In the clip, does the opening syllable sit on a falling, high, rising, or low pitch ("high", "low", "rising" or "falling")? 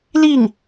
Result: falling